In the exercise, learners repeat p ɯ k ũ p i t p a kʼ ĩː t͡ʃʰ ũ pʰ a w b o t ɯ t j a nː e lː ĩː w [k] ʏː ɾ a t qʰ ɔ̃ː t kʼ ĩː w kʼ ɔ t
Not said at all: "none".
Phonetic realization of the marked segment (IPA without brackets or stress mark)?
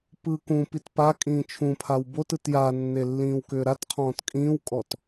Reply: k